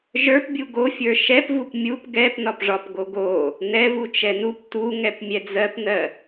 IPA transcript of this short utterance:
ʒ ə˞ p bʲ u ɡ o fʲ ə˞ ʃ ɛ p v u p mʲ u p ɡ ɛ p n ɒ p ʐ ɒ p ɡ o ɡ o | n ɛ v u t͡ʃ ɛ n u p t u ŋ ɛ p mʲ ɛ d͡z ɜ p n ɜ

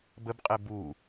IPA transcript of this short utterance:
b ə b qʼ e b u

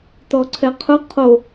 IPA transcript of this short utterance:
t ɔ ǀʰ ɛ qʰ ʊ qʰ o

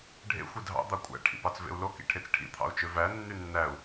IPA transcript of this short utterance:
ɖʱ ḛ xʷ i dʱ ɑ̰ d̪ ɑ kʷʼ æ̰ ʈʰ ḭ p ɑ t͡s v ḛ u̯ l o k ḭ ʈʰ e t͡s ʈʰ ḭ t̪ʰ ɑ̰ u̯ t͡ʃ ø v æ nː y nː æ u̯

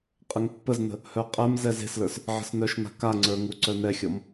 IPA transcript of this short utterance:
qʼ ə ŋ pː ə z n ə̤ | h œ qʼ ɛ m z ɛ z e̤ s l ə˞ s | ʕ ə̤ s n œ ʃ n a̤ k a ŋ͡ǀ ə˞ ŋ u ǀ œ n ɛ xʲ ɔ m

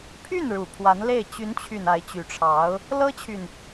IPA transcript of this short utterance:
pʰ y˥˩ n ɻ u˨˩ pʰ w a˧˥ n l e˥˩ ɪ̯ t͡ɕ y˧˥ n t͡ɕʰ y˨˩ n a˧˥ ɪ̯ t͡ɕ y˧˥ ʈ͡ʂʰ ɑ˧˥ ʊ̯ | l ɤ˥ t͡ɕʰ y˨ n

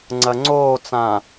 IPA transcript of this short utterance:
ŋ͡ǀ ɐ ŋ͡ǀ oː t͡s ã

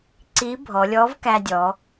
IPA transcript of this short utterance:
ǀ i˧˥ bʱ ɔ˩˧ lʲ ɔ˧˥ v k æ˧ dʲ ɔ˩˧

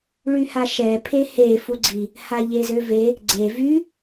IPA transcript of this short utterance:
ɭ y h a ʃ ɛ pʰ e h e f u ɡ͡ǀ i | h a ʎ e z ø v e | ɡ͡ǀ e v y

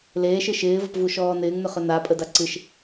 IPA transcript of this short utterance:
l eː ʃ ɨ ʃ ɪː v ə p v u ʃ ɔː n ɪː ŋ n ʏ χ ʏ n a pʼ ə d a ǀ ɨ ʃ

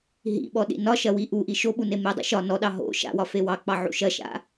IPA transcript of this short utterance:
ɦ ḭ ɓ ɔ ɗ ḭ n ɒ ʃ ɐ w i ʔ u ʔ i ʃ o ɓ u n e m e dˤ ḭ ʃ ɒ n ɔ ɗ ɑ ɦ o̰ ʃ a̰ w ɒ f e w ɑ k͡p ɑ ʕ ṵ ʃ ɐ ʃ a̰

